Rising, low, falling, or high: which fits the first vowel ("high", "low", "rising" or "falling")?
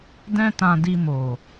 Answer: high